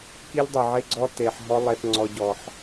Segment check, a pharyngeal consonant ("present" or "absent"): present